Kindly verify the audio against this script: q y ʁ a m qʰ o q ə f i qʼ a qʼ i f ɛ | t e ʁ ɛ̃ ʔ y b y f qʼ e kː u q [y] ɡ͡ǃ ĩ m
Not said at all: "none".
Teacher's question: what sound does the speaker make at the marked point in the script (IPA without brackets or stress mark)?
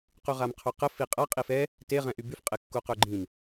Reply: ø